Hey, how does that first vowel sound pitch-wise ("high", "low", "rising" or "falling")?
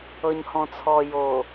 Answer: low